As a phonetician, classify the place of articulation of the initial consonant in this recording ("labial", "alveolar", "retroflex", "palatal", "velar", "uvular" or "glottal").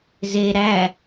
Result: alveolar